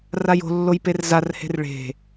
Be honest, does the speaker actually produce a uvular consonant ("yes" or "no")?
no